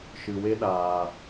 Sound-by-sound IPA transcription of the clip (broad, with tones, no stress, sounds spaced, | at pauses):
ʃ ɨ˨ w e˦ ɗ aː˨